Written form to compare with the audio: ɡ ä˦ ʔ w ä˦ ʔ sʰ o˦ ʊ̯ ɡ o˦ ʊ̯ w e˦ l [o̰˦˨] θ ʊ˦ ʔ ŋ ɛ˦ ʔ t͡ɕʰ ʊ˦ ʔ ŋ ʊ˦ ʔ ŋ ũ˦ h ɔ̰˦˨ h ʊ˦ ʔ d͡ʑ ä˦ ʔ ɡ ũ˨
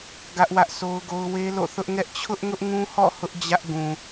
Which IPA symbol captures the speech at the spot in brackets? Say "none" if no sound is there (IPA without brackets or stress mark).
o̰˦˨